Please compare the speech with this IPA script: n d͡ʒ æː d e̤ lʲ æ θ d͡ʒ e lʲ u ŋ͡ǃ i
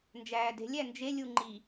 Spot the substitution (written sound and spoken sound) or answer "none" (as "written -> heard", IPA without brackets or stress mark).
θ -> n